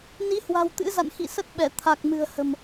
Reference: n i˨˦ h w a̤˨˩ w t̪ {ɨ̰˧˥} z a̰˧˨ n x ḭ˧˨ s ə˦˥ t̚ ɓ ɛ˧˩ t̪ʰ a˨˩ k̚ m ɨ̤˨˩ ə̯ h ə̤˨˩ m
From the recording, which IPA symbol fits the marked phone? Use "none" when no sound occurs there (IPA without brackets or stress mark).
ɨ̰˧˥